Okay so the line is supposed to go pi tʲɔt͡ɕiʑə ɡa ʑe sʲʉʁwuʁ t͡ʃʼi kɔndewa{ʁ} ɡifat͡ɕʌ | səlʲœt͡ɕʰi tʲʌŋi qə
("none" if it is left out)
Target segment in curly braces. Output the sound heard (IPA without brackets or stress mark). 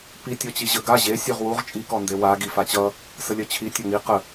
none